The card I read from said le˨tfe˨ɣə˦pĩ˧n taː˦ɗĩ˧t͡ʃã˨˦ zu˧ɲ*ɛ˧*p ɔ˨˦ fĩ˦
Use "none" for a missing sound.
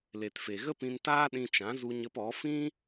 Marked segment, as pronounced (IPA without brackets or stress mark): ə˧